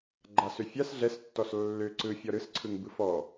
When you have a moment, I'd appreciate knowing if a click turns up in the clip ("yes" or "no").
yes